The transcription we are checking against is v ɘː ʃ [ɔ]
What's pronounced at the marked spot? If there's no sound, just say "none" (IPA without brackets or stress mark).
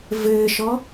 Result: ɔ